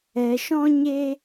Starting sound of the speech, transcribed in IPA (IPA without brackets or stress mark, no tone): ɛ